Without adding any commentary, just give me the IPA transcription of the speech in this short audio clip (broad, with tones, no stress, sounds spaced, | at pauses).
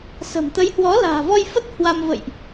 s ə̤˨˩ m t̪ ə˨˦ j h w ɔ˨˦ l a̤ː˨˩ v ɔ˧ j f ə˦˥ t̚ h w a˧ m v ə̰˧˨ j ʔ